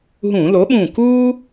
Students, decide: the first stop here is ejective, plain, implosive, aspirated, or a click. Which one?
implosive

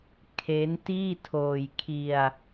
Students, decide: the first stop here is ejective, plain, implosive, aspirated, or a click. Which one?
aspirated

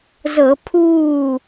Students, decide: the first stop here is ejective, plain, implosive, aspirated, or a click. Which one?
aspirated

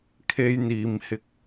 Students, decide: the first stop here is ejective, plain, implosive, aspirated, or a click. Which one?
aspirated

